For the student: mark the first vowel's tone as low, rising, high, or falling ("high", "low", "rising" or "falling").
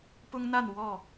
high